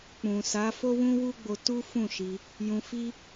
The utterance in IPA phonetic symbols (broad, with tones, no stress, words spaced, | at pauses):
k͡pũ˨ sa˨˦fo˦wũ˦wu˦ ɡ͡bo˧tu˦ fũ˦˨ʃi˧ | jũ˧fi˦